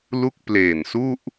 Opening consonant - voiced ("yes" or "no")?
yes